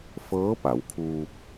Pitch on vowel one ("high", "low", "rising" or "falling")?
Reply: rising